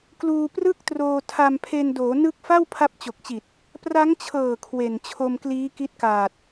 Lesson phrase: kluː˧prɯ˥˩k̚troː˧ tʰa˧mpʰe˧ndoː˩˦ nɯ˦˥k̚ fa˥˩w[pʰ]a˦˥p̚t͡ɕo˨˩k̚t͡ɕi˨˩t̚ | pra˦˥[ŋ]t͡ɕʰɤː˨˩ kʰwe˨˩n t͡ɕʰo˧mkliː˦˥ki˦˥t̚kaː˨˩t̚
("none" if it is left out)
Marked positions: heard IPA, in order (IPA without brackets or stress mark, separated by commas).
pʰ, ŋ